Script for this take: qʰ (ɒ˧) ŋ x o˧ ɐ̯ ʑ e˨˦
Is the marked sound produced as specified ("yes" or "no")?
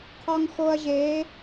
yes